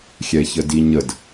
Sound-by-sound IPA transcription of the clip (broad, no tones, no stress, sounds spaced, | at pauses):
xʲ ɛ ç ə d i ɲ ə d